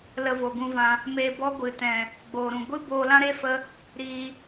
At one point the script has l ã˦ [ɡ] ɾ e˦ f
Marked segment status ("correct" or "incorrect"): incorrect